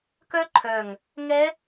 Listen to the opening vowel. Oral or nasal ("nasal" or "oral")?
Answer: oral